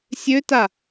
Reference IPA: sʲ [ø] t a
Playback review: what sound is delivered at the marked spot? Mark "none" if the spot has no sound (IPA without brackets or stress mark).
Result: ø